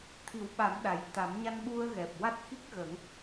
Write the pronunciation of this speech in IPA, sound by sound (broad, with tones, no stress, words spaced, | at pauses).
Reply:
t̪ʰi˨˩˦wɓa˨˩˦m ɗa˨˩j t̪a˨˩˦mɲa˧nɓu˧ə̯ɣɛ˨˩p̚ wa˦˥t̚xi˦˥k̚ ɣə˨˩˦ŋ